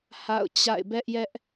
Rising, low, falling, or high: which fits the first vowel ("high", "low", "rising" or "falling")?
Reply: falling